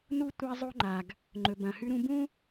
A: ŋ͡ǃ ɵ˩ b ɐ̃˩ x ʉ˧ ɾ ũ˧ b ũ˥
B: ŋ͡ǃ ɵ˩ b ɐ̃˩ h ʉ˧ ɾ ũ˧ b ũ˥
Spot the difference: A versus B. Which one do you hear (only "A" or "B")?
B